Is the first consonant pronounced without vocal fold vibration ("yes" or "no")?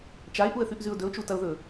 yes